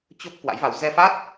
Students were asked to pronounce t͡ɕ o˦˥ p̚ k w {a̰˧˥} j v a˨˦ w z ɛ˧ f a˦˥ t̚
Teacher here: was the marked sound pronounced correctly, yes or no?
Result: yes